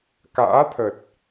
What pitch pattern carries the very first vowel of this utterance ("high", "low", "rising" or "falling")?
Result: rising